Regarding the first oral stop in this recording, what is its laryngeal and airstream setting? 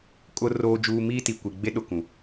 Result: ejective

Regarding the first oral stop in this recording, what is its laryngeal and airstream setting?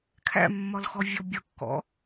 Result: aspirated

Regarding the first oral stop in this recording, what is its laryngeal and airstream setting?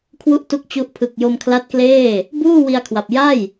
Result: aspirated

